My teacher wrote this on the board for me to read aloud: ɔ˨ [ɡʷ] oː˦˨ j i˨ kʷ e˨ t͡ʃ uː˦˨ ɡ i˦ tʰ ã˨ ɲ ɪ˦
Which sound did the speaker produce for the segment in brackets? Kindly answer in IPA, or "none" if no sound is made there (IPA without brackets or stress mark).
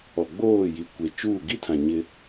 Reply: ɡ͡b